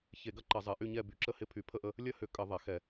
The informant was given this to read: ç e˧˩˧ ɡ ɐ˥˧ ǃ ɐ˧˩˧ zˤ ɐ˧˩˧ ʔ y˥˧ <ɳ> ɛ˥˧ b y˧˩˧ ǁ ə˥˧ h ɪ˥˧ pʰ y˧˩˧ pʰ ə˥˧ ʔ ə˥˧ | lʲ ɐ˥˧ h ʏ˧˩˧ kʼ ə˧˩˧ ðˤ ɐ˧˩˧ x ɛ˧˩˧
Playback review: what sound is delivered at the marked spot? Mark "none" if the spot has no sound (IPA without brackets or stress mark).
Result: ɲ